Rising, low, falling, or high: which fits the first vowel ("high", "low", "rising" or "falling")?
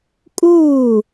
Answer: falling